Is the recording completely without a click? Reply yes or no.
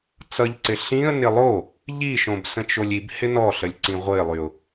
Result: no